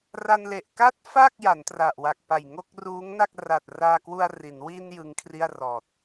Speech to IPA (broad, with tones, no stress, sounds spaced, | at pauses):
r a˧ n l e˨˩ ʔ k a˥˩ t̚ f a˥˩ k̚ j a˩˦ n t r a˨˩ ʔ w a˨˩ k̚ p a˨˩ j ŋ o˥˩ k̚ r uː˦˥ ŋ n a˥˩ k̚ r a˨˩ t̚ r aː˧ k w u˧ a̯ r i˩˦ n w i˧ n j ɯ˦˥ ŋ kʰ r i˥˩ a̯ r ɔː˨˩ t̚